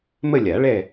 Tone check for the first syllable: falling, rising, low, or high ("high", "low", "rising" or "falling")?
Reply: falling